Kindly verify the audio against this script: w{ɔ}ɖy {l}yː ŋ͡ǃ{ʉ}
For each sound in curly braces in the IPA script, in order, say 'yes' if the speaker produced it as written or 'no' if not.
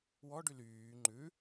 yes, yes, yes

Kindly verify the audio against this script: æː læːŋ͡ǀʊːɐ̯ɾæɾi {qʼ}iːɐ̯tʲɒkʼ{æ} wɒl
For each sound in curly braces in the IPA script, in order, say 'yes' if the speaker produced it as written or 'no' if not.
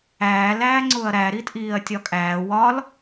no, no

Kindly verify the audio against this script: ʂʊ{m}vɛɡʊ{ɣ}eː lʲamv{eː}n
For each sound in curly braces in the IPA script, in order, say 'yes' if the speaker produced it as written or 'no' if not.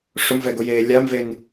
yes, no, no

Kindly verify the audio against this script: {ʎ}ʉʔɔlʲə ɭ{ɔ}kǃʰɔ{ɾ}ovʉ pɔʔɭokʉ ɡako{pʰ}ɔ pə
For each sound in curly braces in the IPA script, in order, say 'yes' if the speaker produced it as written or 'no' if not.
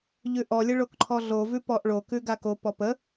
yes, no, no, no

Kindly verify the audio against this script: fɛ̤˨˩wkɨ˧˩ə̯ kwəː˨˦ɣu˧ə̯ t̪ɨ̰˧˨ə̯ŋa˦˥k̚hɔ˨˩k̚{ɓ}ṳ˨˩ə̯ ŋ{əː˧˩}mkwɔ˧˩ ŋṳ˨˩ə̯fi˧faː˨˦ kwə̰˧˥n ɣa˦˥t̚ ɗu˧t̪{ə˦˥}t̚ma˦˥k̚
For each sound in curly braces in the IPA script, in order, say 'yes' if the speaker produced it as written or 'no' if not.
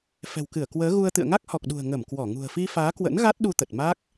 no, no, no

